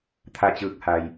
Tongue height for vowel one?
low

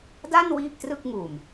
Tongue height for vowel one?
low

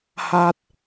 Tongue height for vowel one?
low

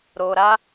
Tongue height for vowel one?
mid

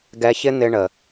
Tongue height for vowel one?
mid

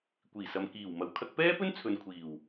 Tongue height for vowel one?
high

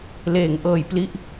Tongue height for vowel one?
mid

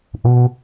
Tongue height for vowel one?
high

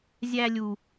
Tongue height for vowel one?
low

